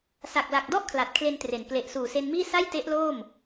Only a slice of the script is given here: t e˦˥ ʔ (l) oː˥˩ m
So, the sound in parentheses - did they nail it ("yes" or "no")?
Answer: yes